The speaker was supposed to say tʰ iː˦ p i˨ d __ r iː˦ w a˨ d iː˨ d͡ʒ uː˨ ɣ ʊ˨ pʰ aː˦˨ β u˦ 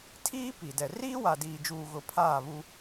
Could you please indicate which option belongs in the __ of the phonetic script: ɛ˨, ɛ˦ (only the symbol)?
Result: ɛ˨